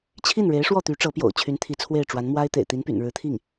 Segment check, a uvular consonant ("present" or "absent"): absent